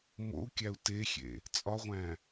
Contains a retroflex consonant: no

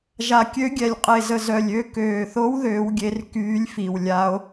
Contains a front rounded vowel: yes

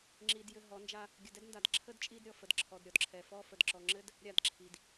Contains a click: yes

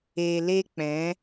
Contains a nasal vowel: yes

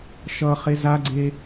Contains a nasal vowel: no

